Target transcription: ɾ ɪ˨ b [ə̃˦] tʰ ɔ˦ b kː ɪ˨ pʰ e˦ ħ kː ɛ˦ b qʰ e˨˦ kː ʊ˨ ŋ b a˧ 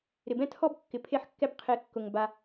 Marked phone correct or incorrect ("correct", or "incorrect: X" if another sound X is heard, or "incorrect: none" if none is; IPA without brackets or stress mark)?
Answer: incorrect: ɛ̃˦